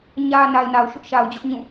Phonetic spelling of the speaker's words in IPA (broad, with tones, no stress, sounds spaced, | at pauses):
ɲ ä˨ n a˨ ɪ̯ n a˨ ʊ̯ ʃ ʊ˦ ʔ ʃ a˨ ʊ̯ d͡ʑ ʊ˦ ʔ ɲ ũ˦˨